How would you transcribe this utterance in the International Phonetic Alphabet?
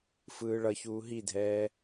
f ɯː ɭ ʌ ç uː ɦ i dʱ ɛː

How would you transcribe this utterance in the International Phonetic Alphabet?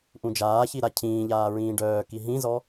ʔ ũ d͡ʒ aː ç i ɾ a cʰ ĩː ʎ aː ɹ ĩː ɖ œː k i ɦ ĩ z ɔ

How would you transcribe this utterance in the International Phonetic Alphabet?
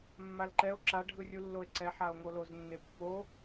mː a l ǃ ɛ o̯ ǁ a ɖʱ ɯ rʲ u lː o e̯ ǀ ɛ ħ a o̯ ŋ o l o z nː e pː o

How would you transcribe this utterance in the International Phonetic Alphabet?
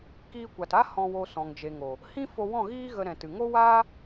k iː˧ kʷ a˨ t a˦ h ɔ̃˧ w o˧ s ɔ̃˨ ŋ d͡ʒ e˨ ŋ o˨ | h ĩ˦ f o˧ w ɔ̃˦˨ ɣ iː˦ ɣ ə˧ ɾ ɛ̃˨ t ɨ˨ ŋ o˦ w aː˦

